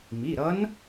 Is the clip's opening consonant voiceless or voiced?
voiced